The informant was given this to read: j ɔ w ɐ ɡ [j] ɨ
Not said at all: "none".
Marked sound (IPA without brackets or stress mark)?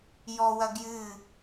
j